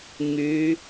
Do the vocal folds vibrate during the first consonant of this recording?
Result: yes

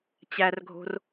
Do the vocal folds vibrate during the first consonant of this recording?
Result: no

